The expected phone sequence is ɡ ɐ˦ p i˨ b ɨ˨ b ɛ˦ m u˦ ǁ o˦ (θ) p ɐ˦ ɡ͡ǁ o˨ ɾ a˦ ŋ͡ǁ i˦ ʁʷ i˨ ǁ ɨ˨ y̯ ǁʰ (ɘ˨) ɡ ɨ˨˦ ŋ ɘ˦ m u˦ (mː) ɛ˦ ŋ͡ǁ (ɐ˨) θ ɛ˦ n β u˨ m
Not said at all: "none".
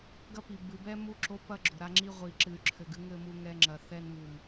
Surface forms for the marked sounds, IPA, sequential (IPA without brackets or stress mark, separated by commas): none, ɘ˨, ŋ, ɐ˨